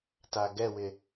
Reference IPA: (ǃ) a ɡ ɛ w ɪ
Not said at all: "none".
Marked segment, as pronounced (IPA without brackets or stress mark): t